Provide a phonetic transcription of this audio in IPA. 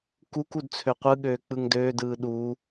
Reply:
k u k u d t͡sʰ ø qʷ ɯ ɠ øː k͡p ɯ ŋ d øː d ɯː ɗ uː

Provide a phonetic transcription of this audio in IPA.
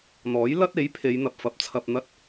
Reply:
n̪ ɔː˨˥ j l ɐ˥ t̚ e˨˥ j pʰ e˨˧ j n̪ ɐ˨ p̚ f ɐ˨˥ p̚ t͡sʰ ɐ˧ p̚ n̪ ɐ˧ t̚

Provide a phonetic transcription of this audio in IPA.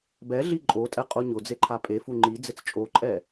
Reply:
b ɛ ɮ i ǃʼ o tʼ ɛ qʼ o ɲ ʊ d͡z e ǃʰ a pʼ e f u ŋ͡ǃ i d͡z ɪ t͡s t͡ʃʼ o ǃʼ ɛ

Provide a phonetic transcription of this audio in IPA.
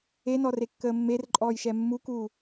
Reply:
e n ɔ r e kː əː mː e r ǃʼ ɔː j ʃ ɛ mː u k uː

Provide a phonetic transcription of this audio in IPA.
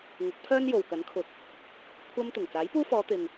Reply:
ŋ ʊ˨˥ k̚ pʰ œː˥ n j o˨ w k ɐ˨˥ n kʰ ʊ˨˥ k̚ | kʷʰ ɐ˧ m t̪ ʊ˨˩ ŋ t͡s aː˨˥ j p uː˥ f ɔː˨˧ t̪ ɪ˨ ŋ

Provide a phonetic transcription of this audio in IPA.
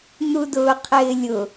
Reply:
n̪ u d ʊː qʰ ɪː lʲ ʊ

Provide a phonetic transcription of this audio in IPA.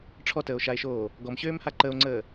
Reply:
ʈ͡ʂʰ ɔ t əː o̯ ʃ a e̯ ʃ oː | ɡ ɔ m ɕ øː m h a ǃ ə o̯ ŋ͡ǀ əː

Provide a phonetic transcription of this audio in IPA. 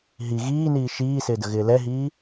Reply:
ɦ i ɣ iː n iː ʃ iː s ɪː d ə ɣ ɪː l ɛ ɦ iː

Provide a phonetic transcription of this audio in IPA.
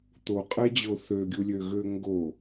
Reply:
t̪ o qʼ ɛ d͡ʑ o θ ø ɡʲ u lʲ ø ɣ ø ŋ ɡ o

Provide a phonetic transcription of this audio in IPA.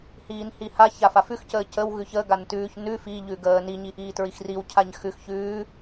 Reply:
h iː n h i h a ç a f a f ʉ x c əː c ə w ɣ ʉ ç ə ɡ a n t ʉː ç n ʉ f i ʎ ʉ ɡ əː n i ɲ i ʔ iː t ɹ i x r i w cʰ a ɲ x ʉ x ç ʉː

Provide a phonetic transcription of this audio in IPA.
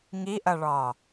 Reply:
ŋ i ʔ ɐ ɭ ɒː

